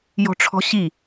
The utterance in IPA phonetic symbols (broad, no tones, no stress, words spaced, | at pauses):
jɔ̤ʈ͡ʂʰɔ̤ɕi